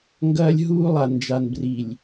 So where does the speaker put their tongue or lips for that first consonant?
velum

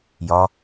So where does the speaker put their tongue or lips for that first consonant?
palate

